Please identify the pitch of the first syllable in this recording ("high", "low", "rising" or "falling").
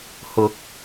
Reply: rising